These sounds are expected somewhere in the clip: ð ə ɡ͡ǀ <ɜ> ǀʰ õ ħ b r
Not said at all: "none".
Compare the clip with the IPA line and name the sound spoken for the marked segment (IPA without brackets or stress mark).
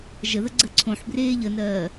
ɜ